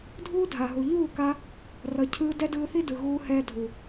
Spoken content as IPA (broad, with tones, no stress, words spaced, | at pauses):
dʱuː˦dʱa˨ɦu˨ ʎuː˦˨ka˧ | rʌ˨cʰɯː˧ dɛ˦dɯː˧θi˦dɯ˨ ɣuː˧hɛː˧ dʱu˨